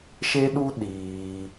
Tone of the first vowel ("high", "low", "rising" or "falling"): high